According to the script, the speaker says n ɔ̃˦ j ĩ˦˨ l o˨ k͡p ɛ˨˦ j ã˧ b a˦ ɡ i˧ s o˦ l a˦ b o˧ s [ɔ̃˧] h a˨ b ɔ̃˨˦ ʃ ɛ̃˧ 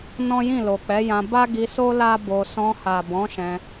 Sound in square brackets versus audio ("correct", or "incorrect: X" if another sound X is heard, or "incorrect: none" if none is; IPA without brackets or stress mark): correct